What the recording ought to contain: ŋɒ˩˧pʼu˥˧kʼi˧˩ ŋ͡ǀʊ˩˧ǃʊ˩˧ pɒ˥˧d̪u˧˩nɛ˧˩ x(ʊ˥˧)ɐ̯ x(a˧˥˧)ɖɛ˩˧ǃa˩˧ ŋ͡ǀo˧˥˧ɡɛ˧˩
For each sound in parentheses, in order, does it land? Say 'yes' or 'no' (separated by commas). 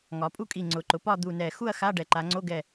no, yes